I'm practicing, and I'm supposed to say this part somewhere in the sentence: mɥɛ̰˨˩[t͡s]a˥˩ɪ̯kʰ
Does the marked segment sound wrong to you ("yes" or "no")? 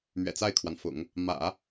no